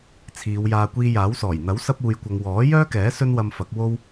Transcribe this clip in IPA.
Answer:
t͡sʰiː˨˧wjaː˧ kʷiː˧jaː˨˥wsɔː˨˩j n̪ɐ˨˥wsɐ˧p̚uː˨jkʷɐ˨ŋ wɔː˨˥jœː˥kɛː˨˥ sɵ˥nwɐ˧mfɐ˨˥k̚ wo˥w

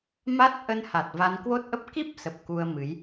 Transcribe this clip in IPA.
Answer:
ma˦˥t̚ ʔə˧nha˨˩t̚ va˧nkwo˦˥t̚ʔə˦˥p̚ ki˦˥p̚sə˨˩p̚ ku˧ə̯mɨ˨˦j

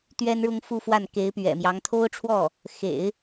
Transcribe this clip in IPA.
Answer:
t̪ɥɛ˥nɻʊ˥ŋfu˥˧fwa˥˩n ke˧˥ɪ̯pɥɛ̰˨˩mjɑ˧˥ŋ t̪ʰo˥ʊ̯ʈ͡ʂʰwɔ˥˩ | xḛ˨˩˦ɪ̯

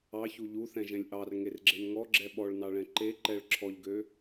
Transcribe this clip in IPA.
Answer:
ɑçu ʎuθɛ̃ʒɛ̃lʲ ʔɑrŋerɡ͡ǁen ŋɔɡ͡ǁɛ ɓɔɭnɑɭɛ̃ ǃe ǃɛɭ ǁʰɔʎɡø

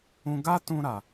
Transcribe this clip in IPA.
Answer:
ũ˧ɡa˦ tũ˦ ɾa˧

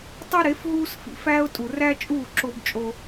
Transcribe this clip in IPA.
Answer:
tˤi˦ɾe˨˦fɦuː˦sfḭ˨ fæː˦ʊ̯tʼu˨ ræ˦t͡ʃʼuː˦˨ ǁo˦bt͡ʃʼo˦

